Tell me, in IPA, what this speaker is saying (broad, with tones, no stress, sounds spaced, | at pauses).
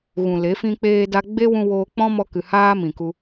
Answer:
ɣ ũ˨ l e˨˦ f ĩ˦ k͡p eː˦ d a˦ ɡ͡b e˦ w ũ˧ w oː˧ k͡p ɔ̃˦ m ɔ˧ k ɨ˨ h aː˦ m ĩ˨ k u˧